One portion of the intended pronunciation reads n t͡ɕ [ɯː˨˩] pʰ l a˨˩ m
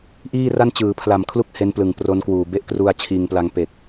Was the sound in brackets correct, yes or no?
no